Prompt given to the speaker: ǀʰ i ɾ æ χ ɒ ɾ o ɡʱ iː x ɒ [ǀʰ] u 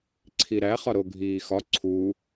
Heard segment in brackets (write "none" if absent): ǀʰ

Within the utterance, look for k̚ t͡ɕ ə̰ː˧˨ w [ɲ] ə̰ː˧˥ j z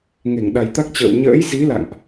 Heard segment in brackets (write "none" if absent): ɲ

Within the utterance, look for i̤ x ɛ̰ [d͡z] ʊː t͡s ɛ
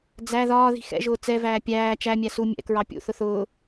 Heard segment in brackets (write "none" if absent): ʒ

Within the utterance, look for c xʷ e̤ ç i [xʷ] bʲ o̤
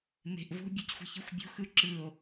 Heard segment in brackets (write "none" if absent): xʷ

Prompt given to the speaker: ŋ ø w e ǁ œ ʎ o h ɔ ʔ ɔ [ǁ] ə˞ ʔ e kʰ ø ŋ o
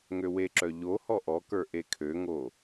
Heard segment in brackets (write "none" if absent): k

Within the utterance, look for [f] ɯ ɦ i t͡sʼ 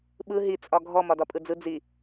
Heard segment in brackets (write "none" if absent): ɓ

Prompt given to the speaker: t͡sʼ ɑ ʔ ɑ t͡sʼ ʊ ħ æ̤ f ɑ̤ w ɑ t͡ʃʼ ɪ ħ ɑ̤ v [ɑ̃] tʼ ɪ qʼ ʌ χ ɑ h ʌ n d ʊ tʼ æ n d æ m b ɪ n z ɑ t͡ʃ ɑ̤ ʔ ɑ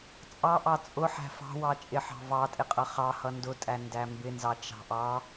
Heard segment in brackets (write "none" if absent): ɑ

